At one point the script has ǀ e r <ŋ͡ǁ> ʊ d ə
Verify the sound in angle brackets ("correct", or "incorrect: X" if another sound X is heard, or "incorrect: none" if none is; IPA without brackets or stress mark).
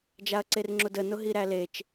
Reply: correct